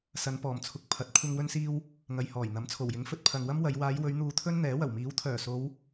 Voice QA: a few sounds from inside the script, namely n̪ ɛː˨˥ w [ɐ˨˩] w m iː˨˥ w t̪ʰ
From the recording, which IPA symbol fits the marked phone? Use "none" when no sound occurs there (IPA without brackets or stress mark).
ɐ˨˩